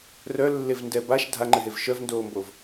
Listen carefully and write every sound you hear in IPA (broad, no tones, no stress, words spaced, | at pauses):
rœlːevndɛ baʃ dʱaŋ͡ǃɘɦev ʃœvndoːmbov